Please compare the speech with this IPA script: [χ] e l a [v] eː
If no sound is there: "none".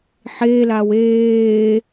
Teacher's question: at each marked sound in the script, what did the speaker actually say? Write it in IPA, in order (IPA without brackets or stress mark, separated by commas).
ħ, w